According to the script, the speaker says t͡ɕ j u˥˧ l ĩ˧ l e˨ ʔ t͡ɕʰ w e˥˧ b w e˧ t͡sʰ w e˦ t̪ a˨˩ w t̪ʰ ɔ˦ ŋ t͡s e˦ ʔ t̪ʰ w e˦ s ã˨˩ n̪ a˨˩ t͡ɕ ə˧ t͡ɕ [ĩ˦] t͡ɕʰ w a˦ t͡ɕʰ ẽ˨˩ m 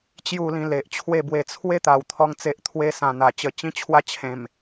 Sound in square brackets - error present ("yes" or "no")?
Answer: no